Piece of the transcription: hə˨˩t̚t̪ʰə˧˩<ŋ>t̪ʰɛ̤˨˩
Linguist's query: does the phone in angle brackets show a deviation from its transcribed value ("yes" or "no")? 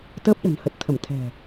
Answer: yes